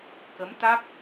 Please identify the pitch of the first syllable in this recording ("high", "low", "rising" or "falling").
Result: rising